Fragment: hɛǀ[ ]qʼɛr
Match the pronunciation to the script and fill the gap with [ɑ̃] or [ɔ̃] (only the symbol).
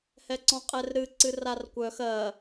ɔ̃